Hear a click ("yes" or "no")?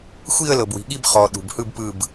no